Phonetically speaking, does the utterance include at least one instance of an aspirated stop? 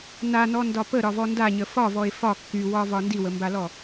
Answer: no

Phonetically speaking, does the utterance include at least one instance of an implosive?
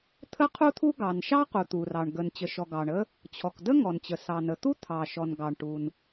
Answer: no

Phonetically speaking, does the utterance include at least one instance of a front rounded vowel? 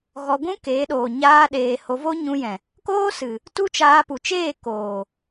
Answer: no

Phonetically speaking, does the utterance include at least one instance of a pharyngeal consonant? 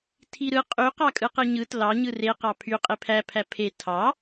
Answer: no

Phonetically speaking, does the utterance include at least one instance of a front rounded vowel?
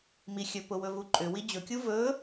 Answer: yes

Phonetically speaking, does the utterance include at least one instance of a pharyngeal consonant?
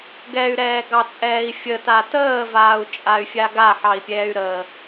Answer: yes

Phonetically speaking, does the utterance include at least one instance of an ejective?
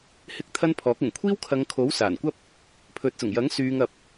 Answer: no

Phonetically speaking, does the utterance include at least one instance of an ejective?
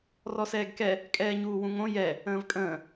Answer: yes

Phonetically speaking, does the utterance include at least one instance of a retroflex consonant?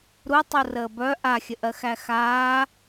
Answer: no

